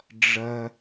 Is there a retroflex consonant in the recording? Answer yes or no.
yes